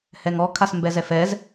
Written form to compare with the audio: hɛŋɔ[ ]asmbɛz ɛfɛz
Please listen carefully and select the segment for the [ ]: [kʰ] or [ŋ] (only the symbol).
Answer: kʰ